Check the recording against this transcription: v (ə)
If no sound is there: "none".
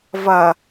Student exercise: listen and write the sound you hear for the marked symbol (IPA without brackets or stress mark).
ɐ